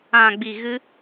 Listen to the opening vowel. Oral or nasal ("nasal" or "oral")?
nasal